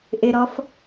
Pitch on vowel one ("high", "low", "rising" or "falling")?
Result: low